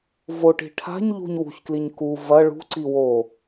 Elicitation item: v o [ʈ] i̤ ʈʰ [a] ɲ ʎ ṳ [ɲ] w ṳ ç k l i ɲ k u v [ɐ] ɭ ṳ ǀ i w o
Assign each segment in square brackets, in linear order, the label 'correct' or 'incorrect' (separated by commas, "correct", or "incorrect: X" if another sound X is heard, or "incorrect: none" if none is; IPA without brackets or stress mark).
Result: correct, incorrect: a̤, correct, correct